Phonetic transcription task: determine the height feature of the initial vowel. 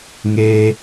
mid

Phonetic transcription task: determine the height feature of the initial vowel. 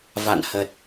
low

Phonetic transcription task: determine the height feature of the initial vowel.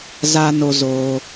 low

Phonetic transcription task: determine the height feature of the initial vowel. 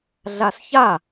low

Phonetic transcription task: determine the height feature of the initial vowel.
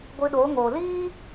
high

